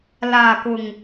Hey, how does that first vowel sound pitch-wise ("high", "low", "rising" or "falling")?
low